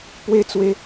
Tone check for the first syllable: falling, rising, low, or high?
high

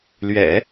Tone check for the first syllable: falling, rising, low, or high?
low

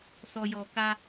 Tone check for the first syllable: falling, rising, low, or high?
low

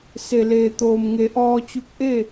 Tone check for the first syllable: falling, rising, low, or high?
low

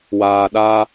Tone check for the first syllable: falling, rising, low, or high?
low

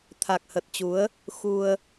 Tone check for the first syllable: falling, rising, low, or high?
low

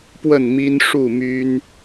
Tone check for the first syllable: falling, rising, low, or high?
falling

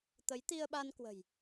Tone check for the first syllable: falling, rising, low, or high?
rising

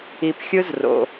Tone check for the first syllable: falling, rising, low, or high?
low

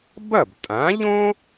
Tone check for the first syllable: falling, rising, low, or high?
falling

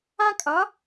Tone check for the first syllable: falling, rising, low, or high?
high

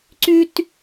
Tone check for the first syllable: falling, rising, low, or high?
high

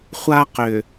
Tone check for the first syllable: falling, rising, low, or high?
high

